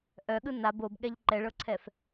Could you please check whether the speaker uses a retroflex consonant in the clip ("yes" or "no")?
yes